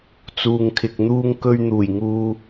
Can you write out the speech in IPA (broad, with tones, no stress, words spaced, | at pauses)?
t͡suː˨ŋkʰɪ˨k̚n̪uː˧ŋkɵ˧ɥ n̪uː˨˩jŋuː˨